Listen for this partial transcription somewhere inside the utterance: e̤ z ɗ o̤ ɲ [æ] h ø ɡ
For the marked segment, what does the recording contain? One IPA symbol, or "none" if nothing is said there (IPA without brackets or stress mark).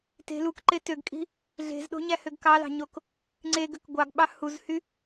æ